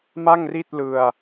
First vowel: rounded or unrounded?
unrounded